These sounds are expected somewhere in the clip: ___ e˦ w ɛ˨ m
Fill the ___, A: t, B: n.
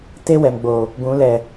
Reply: A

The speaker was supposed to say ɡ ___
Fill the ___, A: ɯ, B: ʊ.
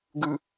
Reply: A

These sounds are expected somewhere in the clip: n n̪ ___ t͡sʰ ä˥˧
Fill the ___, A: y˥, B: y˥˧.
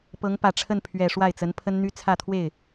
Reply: A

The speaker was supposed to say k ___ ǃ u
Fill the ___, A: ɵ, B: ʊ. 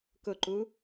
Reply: B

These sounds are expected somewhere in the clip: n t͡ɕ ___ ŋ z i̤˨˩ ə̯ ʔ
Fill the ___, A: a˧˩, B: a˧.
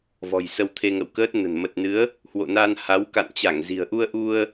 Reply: A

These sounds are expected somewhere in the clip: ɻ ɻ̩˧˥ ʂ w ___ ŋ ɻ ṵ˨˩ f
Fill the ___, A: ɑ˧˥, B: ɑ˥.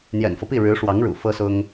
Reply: A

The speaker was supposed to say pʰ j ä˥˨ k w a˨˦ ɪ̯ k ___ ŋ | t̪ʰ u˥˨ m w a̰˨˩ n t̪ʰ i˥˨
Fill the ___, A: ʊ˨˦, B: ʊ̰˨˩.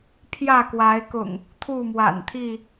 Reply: B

